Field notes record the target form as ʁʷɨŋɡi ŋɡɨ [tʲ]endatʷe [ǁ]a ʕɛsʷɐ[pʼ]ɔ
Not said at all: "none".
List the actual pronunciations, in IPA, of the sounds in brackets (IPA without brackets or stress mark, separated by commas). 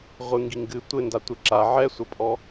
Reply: tʷ, ǁ, pʼ